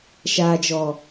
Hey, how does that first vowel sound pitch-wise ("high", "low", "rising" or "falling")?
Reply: low